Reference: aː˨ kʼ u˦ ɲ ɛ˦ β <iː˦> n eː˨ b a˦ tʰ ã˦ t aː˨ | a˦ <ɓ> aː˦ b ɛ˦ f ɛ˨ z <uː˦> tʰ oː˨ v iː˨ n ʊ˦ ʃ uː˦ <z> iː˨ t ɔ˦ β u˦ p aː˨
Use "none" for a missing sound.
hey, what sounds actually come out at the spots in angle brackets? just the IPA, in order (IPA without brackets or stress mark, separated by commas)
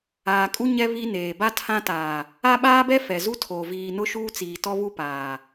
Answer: i˦, ɓ, u˦, t͡s